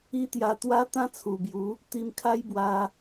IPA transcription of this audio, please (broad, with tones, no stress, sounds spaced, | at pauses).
i˦ t̪ j a˧ t̪ w a˦ t̪ ã˦ t͡sʰ u˨˩ b j u˨˦ | t̪ i˧ m kʰ a˦ j b w a˧